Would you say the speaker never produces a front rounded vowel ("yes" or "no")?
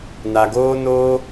yes